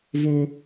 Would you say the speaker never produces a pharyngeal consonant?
yes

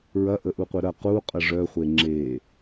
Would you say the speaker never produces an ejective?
no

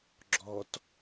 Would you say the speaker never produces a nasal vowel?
yes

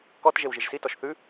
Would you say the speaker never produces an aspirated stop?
yes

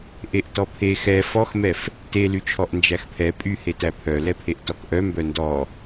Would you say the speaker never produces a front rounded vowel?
no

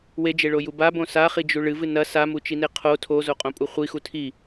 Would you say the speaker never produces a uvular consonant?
no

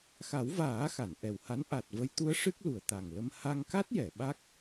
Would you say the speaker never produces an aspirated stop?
yes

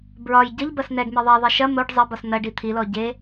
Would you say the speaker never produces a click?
yes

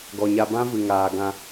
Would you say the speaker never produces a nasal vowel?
no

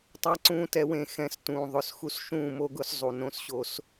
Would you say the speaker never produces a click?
no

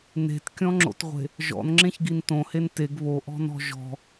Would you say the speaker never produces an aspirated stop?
yes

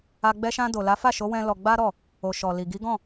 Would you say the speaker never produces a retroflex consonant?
yes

